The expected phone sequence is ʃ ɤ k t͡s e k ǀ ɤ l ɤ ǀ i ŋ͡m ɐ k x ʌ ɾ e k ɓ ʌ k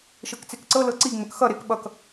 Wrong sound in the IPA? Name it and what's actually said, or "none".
ɐ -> ə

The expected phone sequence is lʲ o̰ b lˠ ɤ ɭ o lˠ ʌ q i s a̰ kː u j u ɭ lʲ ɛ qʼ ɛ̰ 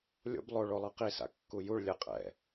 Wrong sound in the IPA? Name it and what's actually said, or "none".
ɤ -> o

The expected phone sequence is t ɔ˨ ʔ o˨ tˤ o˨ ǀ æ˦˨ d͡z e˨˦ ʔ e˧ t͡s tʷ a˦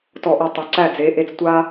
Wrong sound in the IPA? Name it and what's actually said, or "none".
none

